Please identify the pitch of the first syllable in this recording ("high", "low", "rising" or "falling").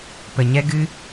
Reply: low